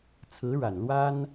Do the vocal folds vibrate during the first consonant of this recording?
no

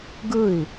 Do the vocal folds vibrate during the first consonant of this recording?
yes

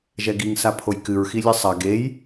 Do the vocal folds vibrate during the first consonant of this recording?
yes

